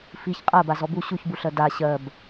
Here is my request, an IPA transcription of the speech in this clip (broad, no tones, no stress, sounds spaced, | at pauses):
f i ç qʼ ɜ b a z ɔ b u ɕ u ç b u ɬ ɜ d a ɕ ɜ b